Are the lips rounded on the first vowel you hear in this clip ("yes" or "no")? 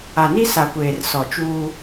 no